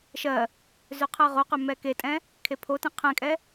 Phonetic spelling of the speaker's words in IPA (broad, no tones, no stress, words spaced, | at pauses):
ʃɜ | zøqʰɜʁoqø mɛketʼɛ̃ | kʰepʰotẽ qʰɛ̃kʼɛ